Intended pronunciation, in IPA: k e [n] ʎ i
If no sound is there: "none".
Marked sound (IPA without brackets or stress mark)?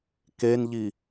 n